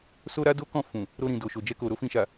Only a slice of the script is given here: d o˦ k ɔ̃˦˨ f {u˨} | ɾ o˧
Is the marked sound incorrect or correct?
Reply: incorrect: ũ˨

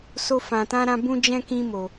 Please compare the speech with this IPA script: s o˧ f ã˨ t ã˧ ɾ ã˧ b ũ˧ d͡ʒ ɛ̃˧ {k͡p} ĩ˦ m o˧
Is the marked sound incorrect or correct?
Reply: incorrect: k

